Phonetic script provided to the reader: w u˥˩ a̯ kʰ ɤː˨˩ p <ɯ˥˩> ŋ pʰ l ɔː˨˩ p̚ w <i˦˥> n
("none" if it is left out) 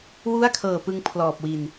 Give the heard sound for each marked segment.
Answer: ɯ˧, i˨˩

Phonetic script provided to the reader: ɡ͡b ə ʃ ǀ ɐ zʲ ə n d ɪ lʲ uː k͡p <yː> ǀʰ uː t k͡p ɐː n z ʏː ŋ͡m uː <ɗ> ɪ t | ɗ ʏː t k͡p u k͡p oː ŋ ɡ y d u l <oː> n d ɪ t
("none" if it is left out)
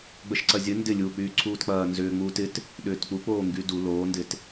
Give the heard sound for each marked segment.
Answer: yː, t, oː

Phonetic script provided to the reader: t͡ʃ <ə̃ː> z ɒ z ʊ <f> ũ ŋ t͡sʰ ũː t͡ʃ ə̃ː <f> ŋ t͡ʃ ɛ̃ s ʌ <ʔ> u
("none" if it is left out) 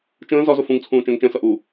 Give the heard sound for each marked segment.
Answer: ə̃ː, f, none, ʔ

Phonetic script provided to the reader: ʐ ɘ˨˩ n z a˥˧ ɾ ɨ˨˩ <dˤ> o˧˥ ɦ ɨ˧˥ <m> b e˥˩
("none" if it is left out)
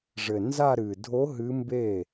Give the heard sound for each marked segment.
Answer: dʱ, m

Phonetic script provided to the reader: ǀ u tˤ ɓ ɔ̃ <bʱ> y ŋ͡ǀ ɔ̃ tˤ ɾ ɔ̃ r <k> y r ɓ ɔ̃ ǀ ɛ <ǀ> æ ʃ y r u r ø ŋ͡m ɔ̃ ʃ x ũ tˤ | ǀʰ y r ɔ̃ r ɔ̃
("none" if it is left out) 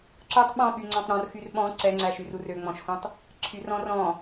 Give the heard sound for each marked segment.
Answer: ɓ, x, ŋ͡ǀ

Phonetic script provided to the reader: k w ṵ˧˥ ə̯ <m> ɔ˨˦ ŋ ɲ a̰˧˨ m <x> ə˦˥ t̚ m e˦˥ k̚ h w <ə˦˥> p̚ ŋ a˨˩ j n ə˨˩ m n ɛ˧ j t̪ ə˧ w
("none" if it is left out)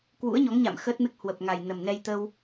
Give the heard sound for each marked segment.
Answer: ɲ, x, ə˨˩

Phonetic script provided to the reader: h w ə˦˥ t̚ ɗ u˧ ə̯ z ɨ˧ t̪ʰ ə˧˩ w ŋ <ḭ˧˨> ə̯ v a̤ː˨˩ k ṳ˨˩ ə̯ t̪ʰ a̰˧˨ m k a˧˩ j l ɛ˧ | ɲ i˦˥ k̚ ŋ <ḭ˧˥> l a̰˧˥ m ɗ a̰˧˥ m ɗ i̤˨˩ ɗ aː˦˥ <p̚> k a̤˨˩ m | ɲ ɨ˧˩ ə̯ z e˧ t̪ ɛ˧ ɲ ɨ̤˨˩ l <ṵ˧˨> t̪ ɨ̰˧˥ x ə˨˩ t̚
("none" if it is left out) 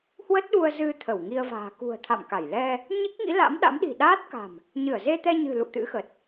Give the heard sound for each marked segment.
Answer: i˧, ḭ˧˥, t̚, ṵ˧˨

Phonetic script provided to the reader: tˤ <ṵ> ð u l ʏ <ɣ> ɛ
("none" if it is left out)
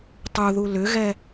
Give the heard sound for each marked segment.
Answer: u, ɣ

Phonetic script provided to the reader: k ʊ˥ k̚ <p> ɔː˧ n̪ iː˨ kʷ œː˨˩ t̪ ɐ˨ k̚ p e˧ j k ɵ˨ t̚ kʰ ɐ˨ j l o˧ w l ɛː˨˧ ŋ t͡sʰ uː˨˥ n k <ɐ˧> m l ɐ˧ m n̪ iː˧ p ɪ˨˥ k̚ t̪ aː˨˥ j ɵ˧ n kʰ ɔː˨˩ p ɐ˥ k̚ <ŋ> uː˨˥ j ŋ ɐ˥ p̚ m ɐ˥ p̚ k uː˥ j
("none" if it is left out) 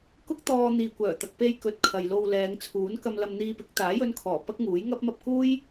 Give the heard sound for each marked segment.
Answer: t̪, ɐ˧, ŋ

